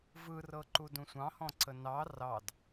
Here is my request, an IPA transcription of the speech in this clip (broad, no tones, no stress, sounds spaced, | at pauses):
v ɯ r ɤ ǃ u d ũ sʷ ɑ̃ h ɔ̃ ǀ ə n ɑ r ɑ d